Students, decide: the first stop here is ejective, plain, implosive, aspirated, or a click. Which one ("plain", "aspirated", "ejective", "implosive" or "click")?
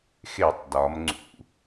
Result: plain